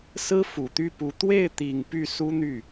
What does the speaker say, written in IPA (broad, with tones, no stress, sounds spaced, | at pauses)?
s ɹ̩˥ f u˨˩ t̪ y˥˩ p u˧˥ t̪ w e˥˩ ɪ̯ t̪ i˨˩ ŋ p y˥˩ s u˥ n̪ y˥˩